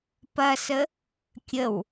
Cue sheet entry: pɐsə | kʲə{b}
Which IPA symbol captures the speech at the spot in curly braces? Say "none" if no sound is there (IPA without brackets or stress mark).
w